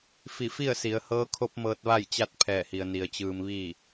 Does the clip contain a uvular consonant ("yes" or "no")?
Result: no